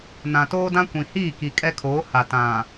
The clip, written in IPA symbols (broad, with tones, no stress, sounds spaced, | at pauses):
n ã˨ t oː˦ d ã˦ kʷ ĩ˨ h iː˦˨ k i˨ kʼ ɛ˦ kʰ oː˨˦ h a˨ t ã˨